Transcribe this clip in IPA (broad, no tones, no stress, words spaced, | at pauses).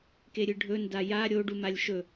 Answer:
keɾʲɨɖʱɵ ndaja ɾʲo ɖumalʲʃɵ